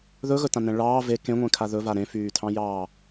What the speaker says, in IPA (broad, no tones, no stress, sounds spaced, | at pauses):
ð ɵ ɣ ɵ t ã n ɛ̃ ɭ ɑː v e k ẽ ŋʷ ẽ kʰ a ð ɵ v a ɾ ẽ f yː tʰ ɑ̃ j ɑː